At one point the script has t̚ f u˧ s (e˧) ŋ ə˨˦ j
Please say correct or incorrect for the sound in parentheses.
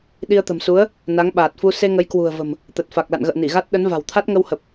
correct